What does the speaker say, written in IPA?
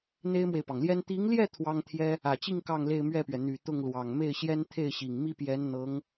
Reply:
n̪ e˥ ɪ̯ m w e˨ ɪ̯ p ɑ˩ ŋ l j ɛ˥ n t̪ i˧˥ ŋ l j ɛ˥˩ t̪ʰ w ɑ˥ ŋ t̪ʰ j ɛ˥ | ä˨˩ t͡ɕ i˥˧ ŋ k ɑ˥˧ ŋ l e˥˧ ɪ̯ m ɥ ɛ˥˩ p ɥ ɛ˩ n̪ y˨˩ t̪ ʊ˥˩ ŋ l w ɑ˨˩ ŋ m e˥˩ ɪ̯ ɕ j ɛ˥ n t̪ʰ e˥˩ ɪ̯ ɕ i˨˩ ŋ m i˥ p j ɛ˧˥ n n̪ ɤ˧˥ ŋ

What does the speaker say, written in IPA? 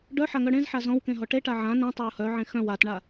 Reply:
ɖ œ ħ a ŋ œ ɽ ẽ z ħ a z ɔ̃ w k ẽ ɦ ɔ ʈ e ʈ a ʕ ã n ẽ tˤ a ʊ̯ h œ ʕ ẽ x œ̃ w a t ɳ a

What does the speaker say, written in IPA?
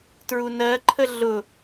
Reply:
t ɹ u n ɜ ǃʰ ə ɮ ʊ

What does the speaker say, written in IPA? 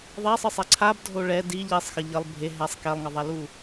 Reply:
ðˤ ɛ sˤ ɯ sˤ ɛ ǀʰ a b dʱ o ɭ ɛ d i ʎ i sˤ x ʌ ʎ ʌ lˠ bʱ e ɦ ɛ sˤ k ɛ lˠ ŋ ʌ ðˤ ɛ l u

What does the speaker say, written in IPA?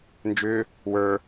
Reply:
n d͡ʒ ʏː | w ə˞

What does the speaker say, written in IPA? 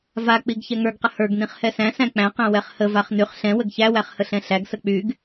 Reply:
v a k͡p i ɡ ç ɛ ŋ ə˞ ɡ q ə h ə˞ ɡ n ĩ χ h ɛ s æ̃ s æ̃ k͡p æ̃ q æ̃ w ɛ χ h ə v a χ n y χ ɬ ɛ̃ w ə ɡ ç æ w æ χ h ə ɬ ɛ̃ ɬ æ ɡ s ə k͡p y ɡ

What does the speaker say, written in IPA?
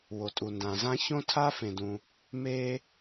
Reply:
w o˩ tʼ u˩ n d ã˩ z ã˥ ç õ˥ tʰ a˥ f ẽ˩ d ũ˩ | m e˧

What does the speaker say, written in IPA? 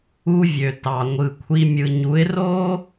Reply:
u˧ vʲ ø˨ t ɑ˨ ŋʷ ɯ˨ kʷʰ i˧ mʲ ɯ˨ ɲ u˨˦ ɪ̯ r o˦

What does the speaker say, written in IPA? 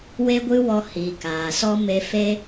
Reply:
w e˦ ɡʷ ɨ˦ w ɔ˧ h i˨ k aː˨ s ɔ˦ m e˧ f e˦

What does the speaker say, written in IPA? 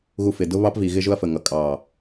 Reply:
ɣ u˨ f ɪ˨ d ʊ˦ β ɑ˦ p v i˨ ɣ ɪ˦ ʒ ʊ˦ ɐ̯ f ə˨ ŋ ʌ˨ kʼ ɑ˨

